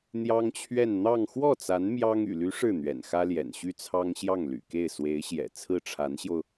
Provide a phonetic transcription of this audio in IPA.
n̪ j ɑ˥ ŋ t͡ɕʰ ɥ ɛ˥˧ n n̪ ɑ˥˧ ŋ x w ɔ˥˩ t͡s a˧˥ n m j ɑ˥ ŋ y̰˨˩ l y˧˥ ʂ ɻ̩˥˩ n̪ ɥ ɛ̰˨˩ n x ä˥ l j ɛ̰˨˩ n ɕ y˥˩ t͡sʰ ɑ˥ ŋ ɕ j ɑ˥˩ ŋ l y̰˨˩ k e˥˩ ɪ̯ s w e˧˥ ɪ̯ ɕ j ɛ̰˨˩ t͡sʰ ɹ̩˥˩ ʈ͡ʂʰ a˧˥ n ɕ j o˧ ʊ̯

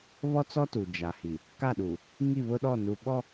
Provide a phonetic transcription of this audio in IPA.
β ɔ˦ t͡s ɔ˦ t u˨ d͡ʒ a˨ h i˨ | k a˦˨ ɗ u˨ | ŋ i˦˨ β ʊ˦ ɗ ɔ˦˨ n u˨ ɓ ɔ˦

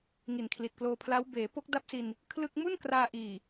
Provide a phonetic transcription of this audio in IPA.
ŋ i˨˩ n kʰ l i˨˩ t̚ k l oː˧ pʰ l a˦˥ w b eː˩˦ p o˦˥ k̚ d a˦˥ p̚ s i˧ n | kʰ l ɯ˥˩ k̚ m u˥˩ n k r aː˧ ʔ iː˨˩

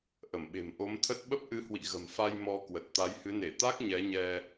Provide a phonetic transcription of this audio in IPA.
ʔ ə˧˩ m ɓ e̤˨˩ m ʔ o˨˦ m t̪ʰ ə˦˥ t̚ ɓ ə˦˥ p̚ ʔ ɨ˨˦ h w ḭ˧˨ ɣ ə̤˨˩ m f a˧ j m ɔ˧ k w ə˨˩ t̚ t̪ a˨˦ j h ɨ˨˦ n e˧˩ t̪ a˦˥ k̚ ɲ ɛ˨˦ ɲ ɛ˧

